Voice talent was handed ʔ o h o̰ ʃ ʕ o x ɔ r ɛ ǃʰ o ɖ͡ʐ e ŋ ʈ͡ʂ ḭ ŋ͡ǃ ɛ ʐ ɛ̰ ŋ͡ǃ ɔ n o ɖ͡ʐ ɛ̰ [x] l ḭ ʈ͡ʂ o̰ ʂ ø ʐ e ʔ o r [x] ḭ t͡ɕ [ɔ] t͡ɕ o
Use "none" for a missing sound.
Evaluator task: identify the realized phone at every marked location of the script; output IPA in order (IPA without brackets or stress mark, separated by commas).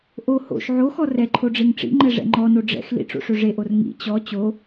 x, ŋ, ɔ